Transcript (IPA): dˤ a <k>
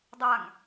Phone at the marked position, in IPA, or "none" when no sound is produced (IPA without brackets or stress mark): ŋ